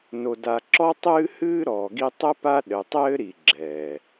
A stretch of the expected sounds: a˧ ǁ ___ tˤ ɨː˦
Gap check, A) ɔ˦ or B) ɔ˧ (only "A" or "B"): A